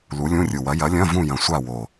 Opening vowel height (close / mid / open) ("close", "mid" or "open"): close